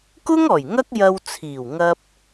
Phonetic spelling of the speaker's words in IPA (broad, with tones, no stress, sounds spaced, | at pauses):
k ʊ˥ ŋ ɔː˨˩ j ŋ ɐ˥ k̚ j ɐ˧ w t͡sʰ iː˨˩ w ŋ ɐ˧ p̚